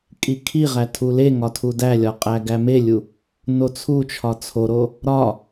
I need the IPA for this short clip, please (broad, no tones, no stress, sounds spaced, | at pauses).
kʼ i kʰ i ʁ æ tʰ u l e ŋ ɒ tʰ u d æ lʲ ɒ qʼ æ ɡ æ m e lʲ u | n o t͡sʰ u t͡ʃʰ ɒ t͡sʰ o ɾ o | ɾ ɒ